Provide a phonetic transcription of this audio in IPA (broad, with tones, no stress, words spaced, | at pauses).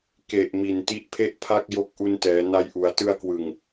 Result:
ke˨˩ʔ mi˨˩nti˦˥ʔpʰe˥˩ʔpʰa˥˩k̚ jo˦˥k̚ʔu˧ntɛː˩˦na˧j ʔu˩˦a̯tɯ˧a̯kwɯ˨˩ŋ